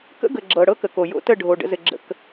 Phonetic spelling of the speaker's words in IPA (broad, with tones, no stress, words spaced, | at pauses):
kə̰˦ɡə˨ ɡ͡ǁɤ˨ ɽɤ˦kə˨ko˨ jo̰˦tə˦˨ ɖʱo˨ ɖə̰˦zɘ˦ ɡ͡ǁə̰˦k